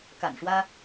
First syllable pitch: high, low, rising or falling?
low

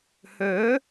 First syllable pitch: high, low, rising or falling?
rising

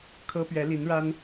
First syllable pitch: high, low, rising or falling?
high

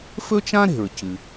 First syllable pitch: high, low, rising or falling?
high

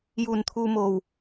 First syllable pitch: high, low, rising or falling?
low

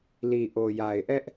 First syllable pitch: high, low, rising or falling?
low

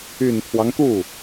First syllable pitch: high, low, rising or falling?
low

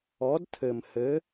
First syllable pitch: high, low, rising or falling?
rising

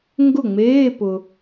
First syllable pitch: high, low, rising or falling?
falling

